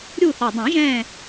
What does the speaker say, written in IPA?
ɾʲu˦˨θɔ˨˩dˤũ˨˩˦ʒɛ̃˦˨

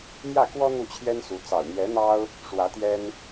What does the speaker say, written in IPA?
mjä˥˩kwɔ˥ n̪u˥˩t͡ɕʰjɛ˥nsu˧˥ t͡sɑ˨˩ʊ̯n̪jɛ˧˥n̪ɑ˥ʊ̯ | ʂwä˧˥t̪jɛ˥n

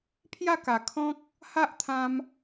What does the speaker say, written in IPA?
pʰja˥˧ka˨˩ kʰɔ̃˦k̚ | ha˦ʔt̪ʰã˧m

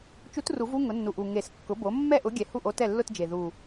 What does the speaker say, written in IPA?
t͡ʃu˧˥tru˨˩˦v u˥˧ ŋʊ˩˥nːu˨˩ʔu˨˩ ŋe˨˩˦skːʊ˩˥bo˩˥ mːɛ˥˩ʔʊ˩˥ ɡʲɛ˨˩hu˥˩ʔ o˧˥tɛ˥˩lːʊ˥˧td͡ʒe˨˩ ðu˨˩

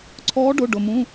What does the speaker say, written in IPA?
ǀʰɔː˧˥ɖʊ˩˧˩ ɖʊ˩mũ˩˧˩

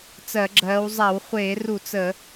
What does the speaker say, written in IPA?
t͡sɜ˧˩˧ɡ͡ǁɜː˨˦w zˤa˧˩˧wχʷeː˧˩˧ru˧˩˧ t͡sə˧˩˧

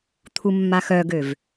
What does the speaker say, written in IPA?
t̪ʰumːaxœɡøv

